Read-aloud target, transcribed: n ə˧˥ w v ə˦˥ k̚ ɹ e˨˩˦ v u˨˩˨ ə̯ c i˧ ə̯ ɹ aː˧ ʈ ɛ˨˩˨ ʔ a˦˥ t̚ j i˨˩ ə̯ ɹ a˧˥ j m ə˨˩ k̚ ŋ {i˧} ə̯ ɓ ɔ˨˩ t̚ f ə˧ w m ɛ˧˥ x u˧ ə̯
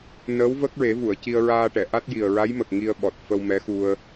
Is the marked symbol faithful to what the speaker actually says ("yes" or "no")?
yes